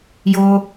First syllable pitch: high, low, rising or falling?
high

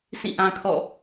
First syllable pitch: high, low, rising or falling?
falling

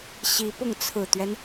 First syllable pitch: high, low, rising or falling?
rising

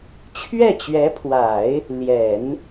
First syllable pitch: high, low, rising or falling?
falling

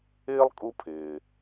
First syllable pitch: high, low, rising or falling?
high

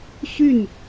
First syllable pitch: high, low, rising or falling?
falling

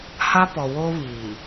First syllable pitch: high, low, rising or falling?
high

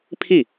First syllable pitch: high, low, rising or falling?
falling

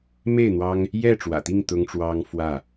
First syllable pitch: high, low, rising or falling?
falling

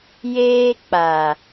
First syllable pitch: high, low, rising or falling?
high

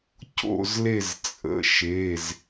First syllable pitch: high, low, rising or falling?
falling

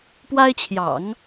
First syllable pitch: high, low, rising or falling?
high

